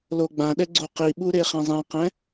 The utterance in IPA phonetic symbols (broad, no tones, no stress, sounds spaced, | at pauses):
l o ɡ͡b ã ɗ ɛ ɡ͡ǀ o q i ɓ u ɾ e χ ɛ̃ zˤ ɛ̃ q ɛ̃